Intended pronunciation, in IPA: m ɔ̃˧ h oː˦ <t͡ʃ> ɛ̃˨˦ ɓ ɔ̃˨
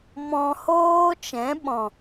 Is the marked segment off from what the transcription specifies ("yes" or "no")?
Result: no